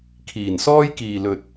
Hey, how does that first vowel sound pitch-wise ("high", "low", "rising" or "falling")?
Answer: low